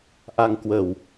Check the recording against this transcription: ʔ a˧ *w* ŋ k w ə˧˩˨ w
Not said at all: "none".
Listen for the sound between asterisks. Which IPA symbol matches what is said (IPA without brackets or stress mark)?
none